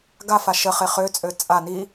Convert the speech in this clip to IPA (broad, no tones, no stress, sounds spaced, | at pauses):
ɡ a f a ʃ ə χ e χ ø t͡sʼ ø t͡sʼ a n i